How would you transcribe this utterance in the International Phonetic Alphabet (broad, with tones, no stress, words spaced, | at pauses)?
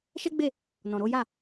ʃɛ˦ɡ͡be˦˨ | nɔ̃˨ɾo˨˦ja˦˨